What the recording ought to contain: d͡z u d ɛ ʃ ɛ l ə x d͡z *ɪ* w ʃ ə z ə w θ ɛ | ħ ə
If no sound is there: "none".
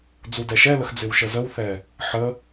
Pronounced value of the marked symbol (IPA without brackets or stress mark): ɪ